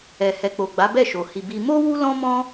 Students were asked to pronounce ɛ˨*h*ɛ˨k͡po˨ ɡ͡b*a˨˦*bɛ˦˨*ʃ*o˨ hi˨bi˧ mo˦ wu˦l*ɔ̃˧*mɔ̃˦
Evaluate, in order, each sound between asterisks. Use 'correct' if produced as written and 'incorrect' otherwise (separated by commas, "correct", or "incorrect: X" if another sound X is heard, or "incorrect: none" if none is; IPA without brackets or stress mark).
correct, correct, correct, incorrect: ɔ̃˦